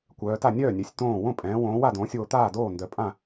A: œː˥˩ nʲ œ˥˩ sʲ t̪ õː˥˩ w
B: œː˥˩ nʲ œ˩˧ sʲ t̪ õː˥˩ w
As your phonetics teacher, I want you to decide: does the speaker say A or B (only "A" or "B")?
B